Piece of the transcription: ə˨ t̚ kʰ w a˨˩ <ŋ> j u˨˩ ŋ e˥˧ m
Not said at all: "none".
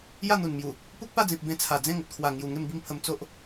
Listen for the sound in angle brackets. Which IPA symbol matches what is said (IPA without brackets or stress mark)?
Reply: ŋ